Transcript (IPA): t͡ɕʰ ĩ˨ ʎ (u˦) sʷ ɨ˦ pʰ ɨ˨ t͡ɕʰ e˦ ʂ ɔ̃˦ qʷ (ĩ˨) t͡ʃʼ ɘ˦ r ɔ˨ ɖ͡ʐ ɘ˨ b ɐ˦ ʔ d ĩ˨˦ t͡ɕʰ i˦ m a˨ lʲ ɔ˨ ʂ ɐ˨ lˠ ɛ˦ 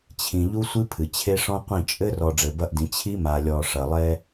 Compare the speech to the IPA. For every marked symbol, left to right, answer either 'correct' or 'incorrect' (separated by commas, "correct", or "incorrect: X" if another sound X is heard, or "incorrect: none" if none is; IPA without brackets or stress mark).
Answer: correct, incorrect: ĩ˦˨